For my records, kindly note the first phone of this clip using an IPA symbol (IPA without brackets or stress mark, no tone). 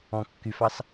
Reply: ɔ̃